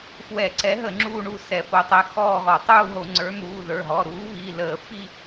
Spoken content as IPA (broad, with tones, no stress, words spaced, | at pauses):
fwɛ˧˩˧ǀɛ˨˥ɦə˧˩˧ ŋ͡ǁuː˥˧ɳu˥˧sɛ˧˩˧ fo˨˥tˤɛ˩˧˩ xɔː˥˧ɣɔ˧˩˧ tˤuː˥˧ɦo˧˩˧ŋ͡ǀə˞˨˥n̪uː˩˧˩ ðə˞˩˧˩ɦɔ˩˧˩ ɾuː˨˥βi˩˧˩ləː˧˩˧fi˥˧